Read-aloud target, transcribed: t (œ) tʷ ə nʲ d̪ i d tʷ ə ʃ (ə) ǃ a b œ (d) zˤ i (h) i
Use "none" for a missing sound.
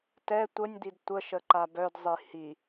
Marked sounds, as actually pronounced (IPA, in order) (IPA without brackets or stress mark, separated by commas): ɛ, ə, d, h